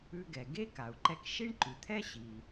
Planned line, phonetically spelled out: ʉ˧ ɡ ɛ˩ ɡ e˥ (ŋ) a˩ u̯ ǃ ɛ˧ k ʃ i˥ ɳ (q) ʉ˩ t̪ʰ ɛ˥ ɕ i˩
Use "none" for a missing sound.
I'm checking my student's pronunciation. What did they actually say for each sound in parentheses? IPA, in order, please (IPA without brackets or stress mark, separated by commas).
k, ǃ